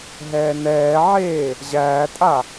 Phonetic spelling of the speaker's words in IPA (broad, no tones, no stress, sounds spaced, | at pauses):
ɦ ɛː n ɛː ʕ eː | ʑ æː tʼ a